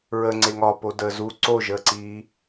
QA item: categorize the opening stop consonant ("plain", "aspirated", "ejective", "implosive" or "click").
click